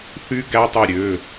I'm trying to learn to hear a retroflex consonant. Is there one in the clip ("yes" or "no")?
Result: no